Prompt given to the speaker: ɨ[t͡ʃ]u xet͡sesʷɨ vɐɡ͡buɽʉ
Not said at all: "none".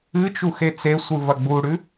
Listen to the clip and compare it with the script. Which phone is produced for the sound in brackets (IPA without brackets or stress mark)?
t͡ʃ